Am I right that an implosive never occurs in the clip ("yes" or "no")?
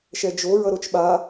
no